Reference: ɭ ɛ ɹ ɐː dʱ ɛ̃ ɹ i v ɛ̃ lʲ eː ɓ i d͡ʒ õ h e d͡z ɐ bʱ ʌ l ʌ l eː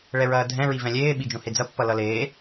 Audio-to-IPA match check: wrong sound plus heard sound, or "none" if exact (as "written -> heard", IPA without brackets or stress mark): bʱ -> pː